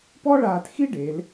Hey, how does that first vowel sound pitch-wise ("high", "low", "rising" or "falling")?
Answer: high